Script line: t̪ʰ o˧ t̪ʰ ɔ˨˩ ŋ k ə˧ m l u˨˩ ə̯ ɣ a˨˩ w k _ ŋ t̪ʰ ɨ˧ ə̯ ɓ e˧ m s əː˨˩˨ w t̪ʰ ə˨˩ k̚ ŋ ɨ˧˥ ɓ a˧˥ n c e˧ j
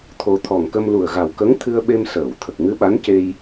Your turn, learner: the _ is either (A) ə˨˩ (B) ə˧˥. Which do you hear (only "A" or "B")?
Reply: B